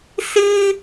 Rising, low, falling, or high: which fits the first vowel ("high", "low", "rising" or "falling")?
high